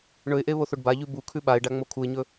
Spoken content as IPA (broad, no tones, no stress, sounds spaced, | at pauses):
ɳ ɵ ɪ̯ ʔ e β o θ o ɖ b a ʎ ʉ b u kʰ ʉ ɓ a ɪ̯ ɖ a ŋ͡m o kʰ u ɪ̯ ɲ ɵ